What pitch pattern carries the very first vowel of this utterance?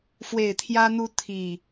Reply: low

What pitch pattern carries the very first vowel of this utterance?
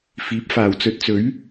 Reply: rising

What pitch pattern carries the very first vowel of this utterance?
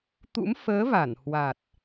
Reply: rising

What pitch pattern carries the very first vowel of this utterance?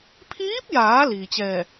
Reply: rising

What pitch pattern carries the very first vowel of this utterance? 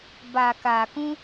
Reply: low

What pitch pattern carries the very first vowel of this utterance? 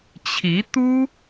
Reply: rising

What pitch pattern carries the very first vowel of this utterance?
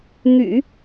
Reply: low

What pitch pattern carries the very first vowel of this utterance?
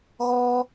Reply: high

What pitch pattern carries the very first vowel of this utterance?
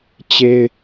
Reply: high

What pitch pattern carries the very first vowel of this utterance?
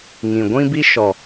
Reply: low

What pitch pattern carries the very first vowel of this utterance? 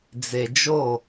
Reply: low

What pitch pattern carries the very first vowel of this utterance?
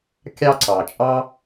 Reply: high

